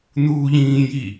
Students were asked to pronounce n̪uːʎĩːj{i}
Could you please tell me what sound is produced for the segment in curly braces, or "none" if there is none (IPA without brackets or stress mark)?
i